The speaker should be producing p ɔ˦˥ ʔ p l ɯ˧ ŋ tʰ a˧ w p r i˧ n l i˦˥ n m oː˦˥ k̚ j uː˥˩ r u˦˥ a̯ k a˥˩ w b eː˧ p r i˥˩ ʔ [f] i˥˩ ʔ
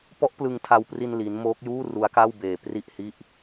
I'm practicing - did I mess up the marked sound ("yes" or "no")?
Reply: yes